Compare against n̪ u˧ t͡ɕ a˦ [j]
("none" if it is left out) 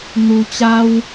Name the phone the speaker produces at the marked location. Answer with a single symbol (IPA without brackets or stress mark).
w